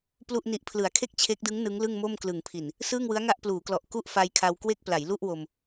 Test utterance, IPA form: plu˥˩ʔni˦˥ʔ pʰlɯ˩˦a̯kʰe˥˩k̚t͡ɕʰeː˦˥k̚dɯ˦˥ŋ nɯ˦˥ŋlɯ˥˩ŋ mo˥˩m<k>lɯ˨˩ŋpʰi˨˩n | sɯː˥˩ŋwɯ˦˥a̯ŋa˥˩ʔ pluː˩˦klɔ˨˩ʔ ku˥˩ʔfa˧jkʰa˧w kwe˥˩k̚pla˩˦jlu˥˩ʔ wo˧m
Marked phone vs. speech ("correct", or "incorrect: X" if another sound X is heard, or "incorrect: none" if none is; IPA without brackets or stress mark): correct